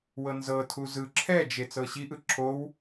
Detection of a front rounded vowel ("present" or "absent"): absent